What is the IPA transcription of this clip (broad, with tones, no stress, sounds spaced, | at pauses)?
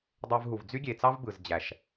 dˤ ø˧ v ɦ u˨ v d͡z y˦ ɡʲ e˨ t͡s ɑ˦ v b ɯ˨ z d͡ʑ æ˨ ʃ